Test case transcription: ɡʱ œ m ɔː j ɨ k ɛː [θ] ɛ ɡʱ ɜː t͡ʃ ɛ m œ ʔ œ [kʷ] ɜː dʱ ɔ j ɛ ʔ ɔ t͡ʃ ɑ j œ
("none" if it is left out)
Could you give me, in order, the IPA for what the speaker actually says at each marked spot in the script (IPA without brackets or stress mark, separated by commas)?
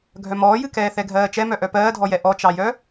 θ, p